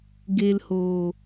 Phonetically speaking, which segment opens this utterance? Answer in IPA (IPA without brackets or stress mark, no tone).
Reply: ɡ